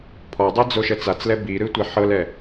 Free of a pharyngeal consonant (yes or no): no